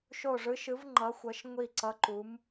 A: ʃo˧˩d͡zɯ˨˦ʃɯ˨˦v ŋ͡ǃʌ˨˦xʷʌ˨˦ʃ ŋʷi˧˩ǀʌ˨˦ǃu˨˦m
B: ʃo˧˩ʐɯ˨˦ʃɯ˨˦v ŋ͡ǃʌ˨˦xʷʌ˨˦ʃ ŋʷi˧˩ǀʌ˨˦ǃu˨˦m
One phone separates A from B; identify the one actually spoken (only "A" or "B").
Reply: B